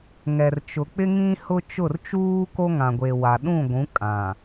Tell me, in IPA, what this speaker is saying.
ŋ ɛ˨ r t͡ʃ ʊ˨ k͡p ɪ˦ ŋ ĩ˦ h ʊ˦ t͡ʃ ʊ˦˨ r t͡ʃ uː˦ k o˦ ŋ ã˨ ɡʷ e˨ w a˨ ɗ ũ˦˨ ɡʷ ũ˨˦ kʼ ã˨

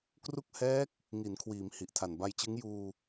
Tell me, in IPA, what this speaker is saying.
k r u˥˩ k̚ h ɛː˦˥ k̚ | ŋ i˩˦ n kʰ w iː˩˦ m h i˨˩ ʔ tʰ a˨˩ n b a˧ j t͡ɕ ɯ˦˥ ŋ j uː˧

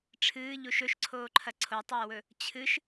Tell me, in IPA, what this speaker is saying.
ʈ͡ʂʰ ɨː ʎ u ʃ ɵ ʃ ǀʰ oː ǃʰ ɐ ǀʰ o tˤ ɵː w ɵ | t͡ɕʰ ɨ ʃ

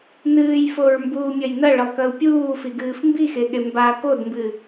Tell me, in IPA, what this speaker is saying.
n ɨː j f o ɹ m b uː mʲ ɐ j n ɐ ɭ ɘ lˠ k ɐ u̯ pʲ uː f i ɡ ɨː f m b i x e ɠ e m b a k o d m b ɨ

